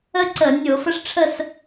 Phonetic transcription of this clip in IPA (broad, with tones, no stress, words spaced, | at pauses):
əː˥ǀəː˧˩˧ nʲoː˧˩˧fə˥ʂ ʈ͡ʂʰə˥˨s